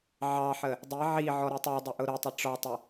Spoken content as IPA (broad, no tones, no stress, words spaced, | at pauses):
ʕɑħə | dˤi ʕi ʕɔɾutˤə˞dˤʊ ʔʊɾʊtˤə ʈ͡ʂɔtˤə